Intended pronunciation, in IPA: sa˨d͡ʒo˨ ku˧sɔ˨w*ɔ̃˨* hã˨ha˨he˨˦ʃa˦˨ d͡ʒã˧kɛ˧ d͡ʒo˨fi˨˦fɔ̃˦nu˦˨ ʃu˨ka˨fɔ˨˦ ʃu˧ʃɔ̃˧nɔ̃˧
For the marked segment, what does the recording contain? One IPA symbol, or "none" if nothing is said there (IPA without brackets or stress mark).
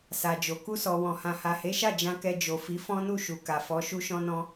ɔ̃˨